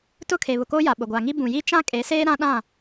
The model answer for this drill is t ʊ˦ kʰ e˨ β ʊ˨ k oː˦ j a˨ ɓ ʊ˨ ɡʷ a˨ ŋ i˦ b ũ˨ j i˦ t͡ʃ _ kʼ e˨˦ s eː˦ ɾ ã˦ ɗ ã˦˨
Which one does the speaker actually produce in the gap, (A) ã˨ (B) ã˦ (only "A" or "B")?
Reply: B